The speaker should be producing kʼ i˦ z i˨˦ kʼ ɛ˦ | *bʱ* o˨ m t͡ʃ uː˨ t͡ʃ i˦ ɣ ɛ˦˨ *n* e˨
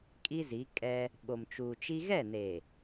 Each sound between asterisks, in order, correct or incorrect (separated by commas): incorrect, correct